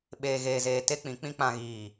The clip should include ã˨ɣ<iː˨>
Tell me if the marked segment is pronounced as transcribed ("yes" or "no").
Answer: yes